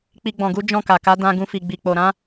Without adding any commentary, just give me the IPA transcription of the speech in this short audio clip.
k͡pi˧ ɡ͡bɔ̃˨ɡu˨˦ d͡ʒɔ̃˦˨ka˨ ka˨˦ dã˧ ɡũ˧fi˨ɡ͡bi˨ k͡po˨ɾã˨˦

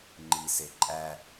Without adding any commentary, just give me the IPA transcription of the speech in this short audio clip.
ŋ͡ǃiseǃʼæ

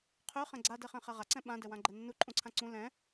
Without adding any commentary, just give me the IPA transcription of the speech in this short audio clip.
qʰø χɛ̃ɡ͡ǀa dɛχɛ̃χɛʁa ǀɛ̃ɓã dɛwãɡ͡ǃɛnːu ǃʼũǀʰãǀũ lɛ̃

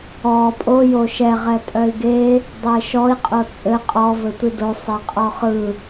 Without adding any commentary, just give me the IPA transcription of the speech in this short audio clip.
ɔ pʼo joʃɛ ʁɛtʼœi̯ɡe | dˤeʃɔi̯ qʼot͡sʼɘ qʼɔ vɘtʷido sˤeqʼɔχɯ

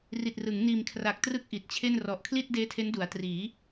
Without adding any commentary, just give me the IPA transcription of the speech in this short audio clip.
ri˨˩t̚rɯ˩˦ŋ niː˨˩mkʰra˨˩k̚trɯ˦˥k̚ ʔi˨˩t̚t͡ɕʰe˥˩n rɔ˨˩ʔkʰli˥˩t̚ deː˦˥tʰe˦˥ndu˩˦a̯ triː˩˦

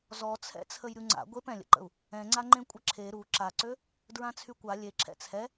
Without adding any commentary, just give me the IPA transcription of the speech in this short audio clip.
zɔt͡sʰɛ̰ t͡sʰəjɾʲuŋ͡ǀa̰ ɡʷep ɛ̃lʲə̰ǃə̰u̯ | ɛ̃ŋ͡ǀaŋ͡ǃẽ kʷʼəǁʰe ɾu ǁaǀø | dɹãt͡sʰykʷa lʲeǁʰɛ̰ t͡sʰɛ

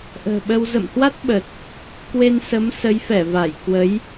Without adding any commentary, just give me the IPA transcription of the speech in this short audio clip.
ʔə̤ː˨˩ɓə˧w zə̰˧˨mhwa˦˥t̚ɓə˨˩t̚ | kwe˧n sə˨˦m sə˨˦jfɛ˧˩va˧˩j kwə˨˦j

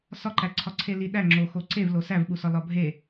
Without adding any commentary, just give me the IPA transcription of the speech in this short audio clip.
sɒǃæǀʰɒ ǀʰeliɗæŋ͡ǁo xoǀevlo sævɓusɒ lɒbʱe

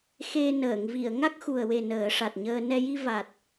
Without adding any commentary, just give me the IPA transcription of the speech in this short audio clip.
xe˧nəː˨˩˨ŋ vi˨˩˨ə̯ŋa˦˥k̚ xu˨˩ə̯we˨˩ nəː˨˩˦ʂa˨˩t̚ɲəː˧ nɛ˧ji˧ va˨˩t̚

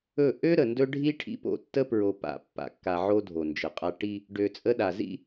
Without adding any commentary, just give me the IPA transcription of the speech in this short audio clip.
ɵ˦˨ ʔø˦ ɾə˨ndɵ˦ɖʱi˦ ʈʰḭ˦po̰˦˨ tːə˦pɹo˨pa̰˨ pːa̰˨kːa˨ʕo˦ dʱo˨nd͡ʒə˨qʼa˦ ʈi˦ | ɖø˨t͡sʼə˦ɗa˨ zḭ˦

